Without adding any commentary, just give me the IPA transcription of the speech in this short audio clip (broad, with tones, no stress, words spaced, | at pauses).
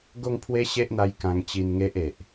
ɡo˥˧ŋpʰwe˦ɕe˦ʔn̪a˧j kã˧ŋt͡ɕi˧nŋe˦ʔ e˨ʔ